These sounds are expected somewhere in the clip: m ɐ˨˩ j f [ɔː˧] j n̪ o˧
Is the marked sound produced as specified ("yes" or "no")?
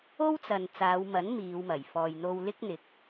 no